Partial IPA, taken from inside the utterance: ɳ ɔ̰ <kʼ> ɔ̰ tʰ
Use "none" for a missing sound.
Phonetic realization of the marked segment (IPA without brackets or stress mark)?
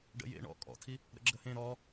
kʼ